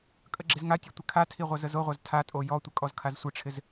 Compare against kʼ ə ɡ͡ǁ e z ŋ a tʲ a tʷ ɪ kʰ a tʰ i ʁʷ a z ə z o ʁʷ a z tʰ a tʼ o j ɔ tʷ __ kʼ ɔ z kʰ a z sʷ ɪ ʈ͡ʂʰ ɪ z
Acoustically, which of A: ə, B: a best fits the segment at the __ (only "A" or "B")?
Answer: A